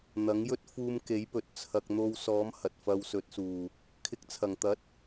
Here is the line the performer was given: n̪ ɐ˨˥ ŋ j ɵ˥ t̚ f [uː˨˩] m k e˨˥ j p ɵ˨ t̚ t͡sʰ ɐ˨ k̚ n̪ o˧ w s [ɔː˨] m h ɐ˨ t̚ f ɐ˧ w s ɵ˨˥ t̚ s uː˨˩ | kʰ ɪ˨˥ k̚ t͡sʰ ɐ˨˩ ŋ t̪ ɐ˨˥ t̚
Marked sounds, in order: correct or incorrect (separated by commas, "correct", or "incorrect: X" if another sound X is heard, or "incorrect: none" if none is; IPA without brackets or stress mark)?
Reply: incorrect: uː˧, incorrect: ɔː˨˥